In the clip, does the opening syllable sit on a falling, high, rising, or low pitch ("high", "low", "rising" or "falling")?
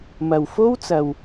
low